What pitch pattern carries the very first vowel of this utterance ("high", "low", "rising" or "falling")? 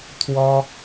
high